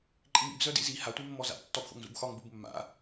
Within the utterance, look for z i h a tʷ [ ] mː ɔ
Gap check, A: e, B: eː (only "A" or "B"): A